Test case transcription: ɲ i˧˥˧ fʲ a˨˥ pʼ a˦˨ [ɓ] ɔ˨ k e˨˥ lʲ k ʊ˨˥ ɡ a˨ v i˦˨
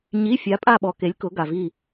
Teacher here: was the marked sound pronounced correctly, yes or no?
yes